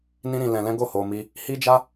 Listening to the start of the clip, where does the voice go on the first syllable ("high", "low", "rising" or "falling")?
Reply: high